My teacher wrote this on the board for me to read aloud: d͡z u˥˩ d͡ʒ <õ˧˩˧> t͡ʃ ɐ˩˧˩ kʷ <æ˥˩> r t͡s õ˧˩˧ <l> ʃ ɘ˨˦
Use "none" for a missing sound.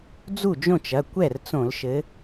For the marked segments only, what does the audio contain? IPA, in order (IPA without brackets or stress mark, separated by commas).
õ˥˩, ɛ˥˩, l